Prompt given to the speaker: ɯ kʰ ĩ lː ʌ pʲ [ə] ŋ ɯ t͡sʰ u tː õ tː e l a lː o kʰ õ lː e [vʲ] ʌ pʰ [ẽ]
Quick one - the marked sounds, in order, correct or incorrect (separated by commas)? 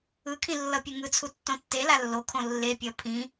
incorrect, incorrect, incorrect